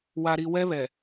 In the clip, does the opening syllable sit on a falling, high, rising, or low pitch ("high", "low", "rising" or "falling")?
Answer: low